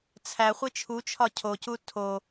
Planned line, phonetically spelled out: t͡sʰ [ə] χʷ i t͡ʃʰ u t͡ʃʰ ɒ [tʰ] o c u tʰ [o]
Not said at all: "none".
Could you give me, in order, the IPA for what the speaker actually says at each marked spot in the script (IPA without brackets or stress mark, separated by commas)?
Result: æ, cʰ, o